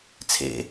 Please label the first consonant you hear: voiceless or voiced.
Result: voiceless